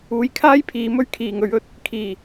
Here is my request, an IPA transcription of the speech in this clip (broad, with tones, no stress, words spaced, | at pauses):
uː˨˧jkʰaː˥jpʰiː˨˧ mɵ˧ɥkʰiː˨˩ŋɵ˨˧ɥɵ˧t̚ | kʰiː˨˩